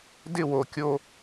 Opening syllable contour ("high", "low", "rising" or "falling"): falling